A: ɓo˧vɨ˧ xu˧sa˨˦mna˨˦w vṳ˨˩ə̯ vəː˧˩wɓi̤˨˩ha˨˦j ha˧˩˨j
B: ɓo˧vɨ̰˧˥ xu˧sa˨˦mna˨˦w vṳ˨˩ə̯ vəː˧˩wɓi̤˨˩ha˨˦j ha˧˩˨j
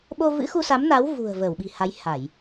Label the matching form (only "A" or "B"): B